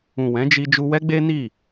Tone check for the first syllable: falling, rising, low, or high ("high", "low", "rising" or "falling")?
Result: low